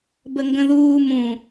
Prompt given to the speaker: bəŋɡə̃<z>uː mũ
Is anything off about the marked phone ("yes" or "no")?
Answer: yes